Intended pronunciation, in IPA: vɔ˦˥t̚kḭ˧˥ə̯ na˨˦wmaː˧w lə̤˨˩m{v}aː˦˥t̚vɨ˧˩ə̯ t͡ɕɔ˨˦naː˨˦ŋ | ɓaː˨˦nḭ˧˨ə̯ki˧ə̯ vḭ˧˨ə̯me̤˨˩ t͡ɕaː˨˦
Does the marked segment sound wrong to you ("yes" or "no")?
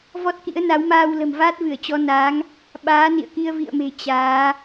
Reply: no